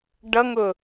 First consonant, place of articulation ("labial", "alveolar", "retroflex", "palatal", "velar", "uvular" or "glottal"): retroflex